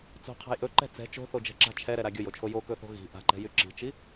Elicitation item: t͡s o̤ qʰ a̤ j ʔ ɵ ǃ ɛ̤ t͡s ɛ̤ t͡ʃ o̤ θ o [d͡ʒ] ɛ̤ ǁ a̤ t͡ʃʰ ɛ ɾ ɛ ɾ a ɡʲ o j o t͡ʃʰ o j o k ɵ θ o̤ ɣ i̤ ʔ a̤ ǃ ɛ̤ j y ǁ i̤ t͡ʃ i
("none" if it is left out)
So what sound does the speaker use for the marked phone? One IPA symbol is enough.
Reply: d͡ʒ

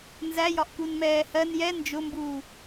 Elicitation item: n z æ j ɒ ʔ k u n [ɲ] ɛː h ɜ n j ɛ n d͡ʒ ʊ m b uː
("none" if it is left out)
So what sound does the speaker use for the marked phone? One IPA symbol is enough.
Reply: m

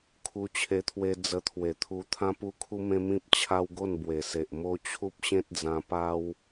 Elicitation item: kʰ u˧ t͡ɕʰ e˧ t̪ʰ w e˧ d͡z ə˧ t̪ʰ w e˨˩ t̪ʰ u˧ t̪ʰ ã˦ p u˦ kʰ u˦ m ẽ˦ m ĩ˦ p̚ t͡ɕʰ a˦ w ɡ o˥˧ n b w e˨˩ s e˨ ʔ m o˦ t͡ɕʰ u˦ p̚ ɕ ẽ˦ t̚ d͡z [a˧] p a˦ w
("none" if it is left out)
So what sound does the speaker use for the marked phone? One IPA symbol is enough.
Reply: ã˧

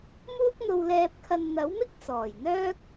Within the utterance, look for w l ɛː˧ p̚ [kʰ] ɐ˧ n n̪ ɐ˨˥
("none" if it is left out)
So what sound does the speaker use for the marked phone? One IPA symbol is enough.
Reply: kʰ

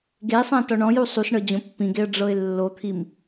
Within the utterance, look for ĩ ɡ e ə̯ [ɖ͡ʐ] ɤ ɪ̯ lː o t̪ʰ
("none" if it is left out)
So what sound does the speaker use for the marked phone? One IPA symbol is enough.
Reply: ɖ͡ʐ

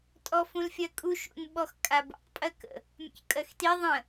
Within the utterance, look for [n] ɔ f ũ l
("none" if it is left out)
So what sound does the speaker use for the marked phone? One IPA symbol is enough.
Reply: tʼ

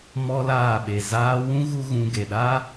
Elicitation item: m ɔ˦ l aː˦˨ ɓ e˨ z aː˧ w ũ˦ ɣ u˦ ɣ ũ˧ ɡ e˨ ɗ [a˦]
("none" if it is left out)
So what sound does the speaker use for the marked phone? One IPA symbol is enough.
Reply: a˦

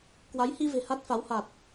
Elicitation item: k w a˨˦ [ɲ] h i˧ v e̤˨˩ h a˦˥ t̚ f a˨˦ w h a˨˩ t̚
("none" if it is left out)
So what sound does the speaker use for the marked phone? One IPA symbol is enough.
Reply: j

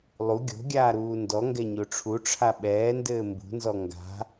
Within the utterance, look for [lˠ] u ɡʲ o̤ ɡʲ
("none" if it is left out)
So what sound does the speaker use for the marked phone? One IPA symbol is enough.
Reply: lˠ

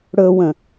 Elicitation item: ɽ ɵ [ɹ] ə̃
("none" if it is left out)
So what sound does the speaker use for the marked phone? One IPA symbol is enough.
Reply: w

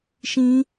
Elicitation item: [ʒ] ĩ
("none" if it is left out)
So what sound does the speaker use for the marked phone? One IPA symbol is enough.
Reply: ʃ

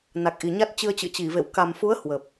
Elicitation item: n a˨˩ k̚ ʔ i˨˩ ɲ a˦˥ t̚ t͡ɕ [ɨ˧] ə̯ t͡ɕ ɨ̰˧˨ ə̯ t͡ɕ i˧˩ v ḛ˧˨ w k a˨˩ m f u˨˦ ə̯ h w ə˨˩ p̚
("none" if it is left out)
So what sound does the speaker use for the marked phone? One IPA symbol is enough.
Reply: ɨ˧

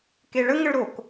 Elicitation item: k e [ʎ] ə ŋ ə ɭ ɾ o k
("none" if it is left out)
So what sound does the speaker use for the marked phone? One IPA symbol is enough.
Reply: ɭ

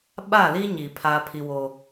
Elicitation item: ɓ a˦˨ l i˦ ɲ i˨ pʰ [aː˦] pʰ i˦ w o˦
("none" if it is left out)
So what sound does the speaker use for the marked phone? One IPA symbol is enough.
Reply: aː˦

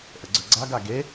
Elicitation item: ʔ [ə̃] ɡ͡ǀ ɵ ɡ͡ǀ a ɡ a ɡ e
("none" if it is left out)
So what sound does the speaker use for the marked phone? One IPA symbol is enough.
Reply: ə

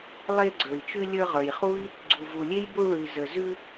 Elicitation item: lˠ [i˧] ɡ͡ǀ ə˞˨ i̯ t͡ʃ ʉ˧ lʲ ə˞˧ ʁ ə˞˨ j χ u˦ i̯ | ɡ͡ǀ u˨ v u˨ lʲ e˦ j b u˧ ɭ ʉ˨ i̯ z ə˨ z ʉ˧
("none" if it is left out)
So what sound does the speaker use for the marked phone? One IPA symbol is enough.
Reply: e˧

